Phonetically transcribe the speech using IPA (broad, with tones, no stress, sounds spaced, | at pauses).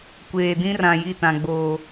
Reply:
kʷ eː˨ d ĩ˦ r ã˨ j i˦˨ t ã˨ ɡ͡b oː˨